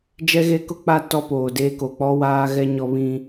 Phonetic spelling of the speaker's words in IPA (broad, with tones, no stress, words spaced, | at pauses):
d͡ʒɛ˦ɣe˦kʊ˦k͡pa˦ tɔ˦poː˨deː˦ ko˨k͡pɔ˦ waː˦ɣɛ˦ ɲɔ˦βĩ˦